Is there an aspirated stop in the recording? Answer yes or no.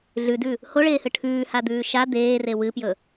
yes